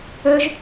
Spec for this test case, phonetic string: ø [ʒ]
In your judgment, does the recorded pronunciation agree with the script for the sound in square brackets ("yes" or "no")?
yes